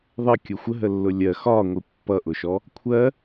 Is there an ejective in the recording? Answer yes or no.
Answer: no